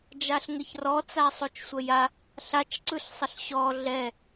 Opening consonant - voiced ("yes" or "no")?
yes